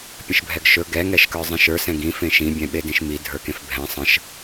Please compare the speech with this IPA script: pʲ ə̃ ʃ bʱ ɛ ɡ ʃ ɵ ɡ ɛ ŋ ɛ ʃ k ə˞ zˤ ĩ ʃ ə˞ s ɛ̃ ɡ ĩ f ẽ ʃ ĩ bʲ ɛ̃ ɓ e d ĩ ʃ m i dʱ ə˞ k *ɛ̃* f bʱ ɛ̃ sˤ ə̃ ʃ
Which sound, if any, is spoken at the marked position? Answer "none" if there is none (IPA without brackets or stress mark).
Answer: ẽ